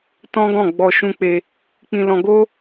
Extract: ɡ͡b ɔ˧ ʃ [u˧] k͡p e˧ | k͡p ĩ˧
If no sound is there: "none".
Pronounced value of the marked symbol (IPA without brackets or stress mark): ũ˧